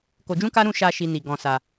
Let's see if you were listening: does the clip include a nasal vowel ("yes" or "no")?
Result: yes